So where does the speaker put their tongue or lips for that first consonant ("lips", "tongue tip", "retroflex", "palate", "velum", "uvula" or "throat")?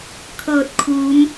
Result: velum